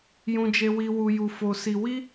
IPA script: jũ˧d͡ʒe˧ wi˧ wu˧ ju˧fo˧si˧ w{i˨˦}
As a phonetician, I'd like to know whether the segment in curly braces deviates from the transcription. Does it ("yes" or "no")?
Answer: yes